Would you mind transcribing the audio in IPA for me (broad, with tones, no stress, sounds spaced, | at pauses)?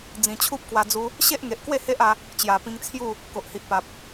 d͡z ĩ˨˩ t͡ɕʰ u˦ p̚ k w a˧ d͡z u˧ | ɕ e˦ ʔ ŋ e˨ ʔ k w e˥˧ h e˦ ʔ a˧ | t͡ɕ j a˨˩ p ĩ˧ ŋ t͡sʰ j u˥˧ | k o˨ ʔ h i˨ ʔ p a˨ p̚